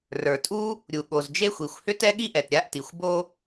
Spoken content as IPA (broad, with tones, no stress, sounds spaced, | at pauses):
r ə˞˩ tʼ u˥ | ɾʲ u˩ ɠ o˩ z d͡ʒ e˥ xʷ i˩ xʷ h ʏ˥ t ɛ˥ ɠ i˥ ʔ ɛ˩ t ɾʲ a˥ ʔ t i˩ xʷ b o˥